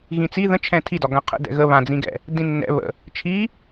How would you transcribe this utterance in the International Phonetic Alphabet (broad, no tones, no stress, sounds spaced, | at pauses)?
ɣ ĩ t͡s i ð ə̃ t͡ʃʰ ɛ̃ tʰ i d ɒ ɡ ã qʰ ə̰ d ɛ̰ ɣ ə β ã d͡z ĩ ɡ ɛ̰ | d ĩ nː ɛ̰ β ə̰ | t͡ʃʰ i